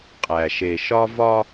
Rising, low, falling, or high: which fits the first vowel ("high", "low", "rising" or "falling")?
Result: low